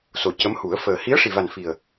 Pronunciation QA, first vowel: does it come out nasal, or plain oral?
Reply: oral